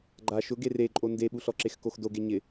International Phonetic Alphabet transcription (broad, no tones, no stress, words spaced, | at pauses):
ɡ͡ǃa ʃʊ ɡereǃʼo ndeɓuɬɔ ǁexkoxdoɡe ɲɪ